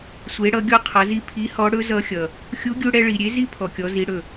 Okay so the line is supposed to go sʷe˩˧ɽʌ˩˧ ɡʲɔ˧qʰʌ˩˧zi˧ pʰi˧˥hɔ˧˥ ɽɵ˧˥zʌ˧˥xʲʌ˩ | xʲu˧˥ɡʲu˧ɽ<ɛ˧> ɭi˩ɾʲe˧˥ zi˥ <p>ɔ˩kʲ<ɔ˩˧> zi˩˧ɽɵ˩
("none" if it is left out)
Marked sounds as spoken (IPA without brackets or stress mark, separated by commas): ɛ˧, pʰ, ɔ˩˧